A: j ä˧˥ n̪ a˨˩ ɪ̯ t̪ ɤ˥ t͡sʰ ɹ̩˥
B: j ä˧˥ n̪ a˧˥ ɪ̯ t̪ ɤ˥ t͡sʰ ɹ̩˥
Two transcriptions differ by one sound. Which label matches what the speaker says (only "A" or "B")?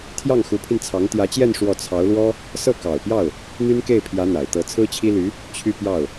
A